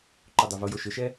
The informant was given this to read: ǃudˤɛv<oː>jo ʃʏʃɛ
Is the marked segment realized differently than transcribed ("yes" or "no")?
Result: yes